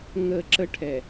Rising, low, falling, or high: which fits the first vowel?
low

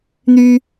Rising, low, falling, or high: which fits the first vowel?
high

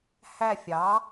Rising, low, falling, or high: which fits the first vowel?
falling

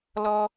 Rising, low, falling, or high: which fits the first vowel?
high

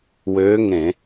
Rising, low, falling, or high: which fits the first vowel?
rising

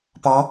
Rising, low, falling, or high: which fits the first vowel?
rising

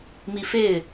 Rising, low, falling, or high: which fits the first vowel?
high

